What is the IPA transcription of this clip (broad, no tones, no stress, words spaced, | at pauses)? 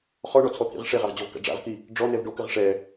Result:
χɔɳɔt͡sʰɔt̪ʰḭʁ ʂeʁaʁd͡ʑɔvka̰ ɖ͡ʐa̰ʁki | ɖ͡ʐɔnɛv ɖokɘʁ ʂɛ